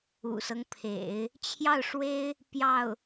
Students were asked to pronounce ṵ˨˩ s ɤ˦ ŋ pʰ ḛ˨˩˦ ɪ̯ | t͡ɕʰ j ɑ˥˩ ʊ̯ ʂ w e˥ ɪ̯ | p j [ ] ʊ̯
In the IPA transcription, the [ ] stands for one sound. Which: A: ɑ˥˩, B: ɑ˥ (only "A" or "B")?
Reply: A